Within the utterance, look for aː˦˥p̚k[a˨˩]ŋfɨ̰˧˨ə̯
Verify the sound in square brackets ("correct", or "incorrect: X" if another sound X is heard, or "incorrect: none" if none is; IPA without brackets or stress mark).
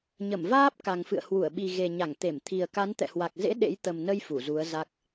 correct